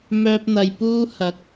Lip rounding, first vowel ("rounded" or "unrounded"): rounded